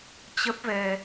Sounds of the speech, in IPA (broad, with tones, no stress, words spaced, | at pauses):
t͡ɕə˦˥p̚vɛ˧